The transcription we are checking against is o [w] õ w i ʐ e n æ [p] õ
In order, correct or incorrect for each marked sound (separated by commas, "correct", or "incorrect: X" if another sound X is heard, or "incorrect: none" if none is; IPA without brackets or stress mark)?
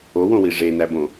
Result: correct, incorrect: b